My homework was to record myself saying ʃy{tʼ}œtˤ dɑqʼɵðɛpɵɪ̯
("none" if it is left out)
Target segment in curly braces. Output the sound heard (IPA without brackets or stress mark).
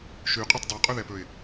qʼ